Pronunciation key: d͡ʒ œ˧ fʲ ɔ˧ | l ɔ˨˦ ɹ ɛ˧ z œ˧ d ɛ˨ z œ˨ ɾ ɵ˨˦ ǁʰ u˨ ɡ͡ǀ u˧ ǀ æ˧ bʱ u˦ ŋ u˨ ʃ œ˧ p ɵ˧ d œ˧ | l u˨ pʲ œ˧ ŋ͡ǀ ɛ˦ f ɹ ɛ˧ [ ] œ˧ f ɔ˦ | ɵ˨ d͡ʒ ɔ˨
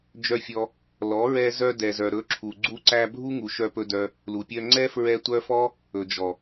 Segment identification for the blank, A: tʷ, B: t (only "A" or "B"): A